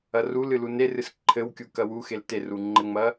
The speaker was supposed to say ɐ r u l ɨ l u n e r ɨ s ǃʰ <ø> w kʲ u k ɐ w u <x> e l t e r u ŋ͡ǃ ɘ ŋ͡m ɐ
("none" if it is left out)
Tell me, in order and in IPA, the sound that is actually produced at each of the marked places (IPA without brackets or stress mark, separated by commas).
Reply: ɘ, x